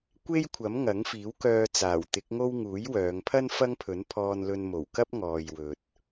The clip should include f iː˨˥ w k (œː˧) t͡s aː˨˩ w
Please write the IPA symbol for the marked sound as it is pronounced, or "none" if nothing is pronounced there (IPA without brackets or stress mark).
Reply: œː˧